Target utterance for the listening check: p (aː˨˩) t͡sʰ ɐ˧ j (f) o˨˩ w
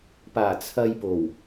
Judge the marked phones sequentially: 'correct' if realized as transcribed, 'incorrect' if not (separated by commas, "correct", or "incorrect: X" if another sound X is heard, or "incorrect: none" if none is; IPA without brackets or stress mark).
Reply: correct, incorrect: p